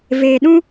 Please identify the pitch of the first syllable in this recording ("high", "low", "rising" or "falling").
low